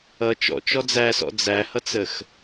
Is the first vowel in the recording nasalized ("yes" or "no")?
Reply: no